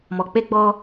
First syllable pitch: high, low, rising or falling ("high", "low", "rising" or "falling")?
low